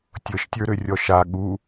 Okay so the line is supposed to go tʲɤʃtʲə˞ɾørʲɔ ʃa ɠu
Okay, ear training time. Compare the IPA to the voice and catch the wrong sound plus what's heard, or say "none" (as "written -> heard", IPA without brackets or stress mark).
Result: none